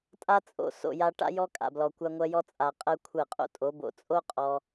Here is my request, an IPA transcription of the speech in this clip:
tʼ a˦ t͡sʼ o̰˨ s o̰˨ j a˧ ʈ a̰˧ j ɔ˧ kʼ a̰˨ b l ɔ˨ kʷ a˧ ŋʷ ɜ˧ j ɔ˧ t͡sʼ a˨ qʼ ɜ˧ kʷʰ ɜ˦˨ qʼ o̰˦ tʼ o˨˦ b o̰˨ t͡sʼ o˦ qʼ ɔ˧

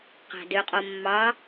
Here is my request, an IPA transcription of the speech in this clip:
q æ̤ d ø qʼ o mː ɑ

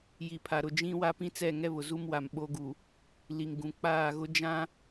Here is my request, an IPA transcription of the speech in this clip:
j i˨ pʰ a˨ ɾ ʊ˨ d͡ʒ ĩ˦ w a˦ p ĩ˦ t͡s ɛ˦˨ ŋ ɛ˦ β ʊ˨ z u˦ m w a˨ m ɓ o˦ ɡ u˨ | l i˨ ŋ ɡ ũ˨ k͡p aː˦˨ ɣ ʊ˦ d͡ʒ ã˦

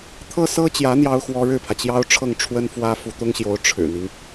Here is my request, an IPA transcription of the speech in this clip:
t̪ʰ ɤ˥ s ɤ˥ t͡ɕ j ä˧˥ n̪ j ɑ˥ ʊ̯ x w ɔ˥ ɻ ɻ̩˥˩ pʰ ä˩ t͡ɕ j ɑ˥ ʊ̯ ʈ͡ʂʰ ɤ˥˩ ŋ ʈ͡ʂʰ w ə˥ n f w ä˥ f u˧˥ t̪ ʊ˥ ŋ ɕ j o˧˥ ʊ̯ ʈ͡ʂʰ ɻ̩˨˩ n̪ i˦ ŋ

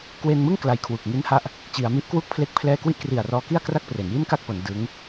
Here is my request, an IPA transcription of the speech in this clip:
k w e˧ n m ɯ˥˩ ŋ k l a˧ j kʰ w u˨˩ k̚ ŋ i˦˥ n h a˦˥ ʔ | t͡ɕ i˩˦ a̯ m i˦˥ ʔ k w u˦˥ k̚ pʰ l e˥˩ k̚ pʰ l ɛː˥˩ k w i˥˩ ʔ k r i˨˩ a̯ r ɔː˧ k i˥˩ a̯ k r a˥˩ k̚ p r e˩˦ n j i˥˩ n k a˥˩ k̚ p o˩˦ n d ɯ˦˥ ŋ

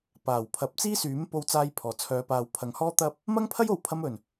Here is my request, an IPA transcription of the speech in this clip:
p aː˨˩ w pʰ ɐ˨˥ p̚ t͡s iː˥ s yː˨˥ m p o˧ w t͡s aː˧ j pʰ ɔː˨˩ t͡sʰ œː˨˧ p aː˨ w pʰ ɐ˨˧ ŋ h ɔː˥ t̪ ɐ˥ p̚ | m ɐ˥ ŋ pʰ ɐ˥ j o˨˧ w pʰ ɐ˧ m ɵ˨˩ n

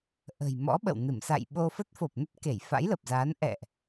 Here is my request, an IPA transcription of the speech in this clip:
ʔ ə̤˨˩ j m ɔ̰˧˥ ɓ ə̰˧˨ w n ɨ˧˩ m s a̰˧˨ j ɓ o˧ f ə˦˥ t̚ f o˨˩ p̚ n ə˦˥ t̚ k e˧˩ j f a̰˧˥ j l ə˨˩ p̚ z aː˨˦ n ʔ ɛ̰˧˨ ʔ

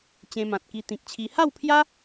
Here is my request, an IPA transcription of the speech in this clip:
t͡ɕ ẽ˧ m ã˨ t̚ k i˧ t̪ ĩ˨ k̚ t͡ɕʰ i˧ h a˥˧ w pʰ j a˦

